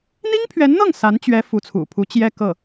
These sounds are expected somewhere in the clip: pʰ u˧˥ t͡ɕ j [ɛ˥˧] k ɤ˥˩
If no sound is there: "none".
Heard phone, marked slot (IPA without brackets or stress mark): ɛ˥˧